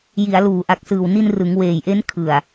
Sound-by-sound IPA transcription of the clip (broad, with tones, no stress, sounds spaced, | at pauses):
j i˩˦ a̯ l uː˩˦ ʔ a˨˩ k̚ s ɯː˨˩ w n i˧ n r ɯ˩˦ ŋ w eː˨˩ j ʔ e˦˥ n kʰ ɯ˨˩ a̯